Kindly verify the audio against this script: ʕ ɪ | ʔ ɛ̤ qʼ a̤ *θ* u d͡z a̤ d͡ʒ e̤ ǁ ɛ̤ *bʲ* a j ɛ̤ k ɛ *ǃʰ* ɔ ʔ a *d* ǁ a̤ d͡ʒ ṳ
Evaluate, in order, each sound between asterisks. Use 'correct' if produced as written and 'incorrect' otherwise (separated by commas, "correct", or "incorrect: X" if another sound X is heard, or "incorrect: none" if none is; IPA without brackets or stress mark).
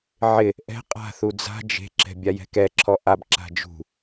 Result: correct, correct, incorrect: ǁʰ, incorrect: b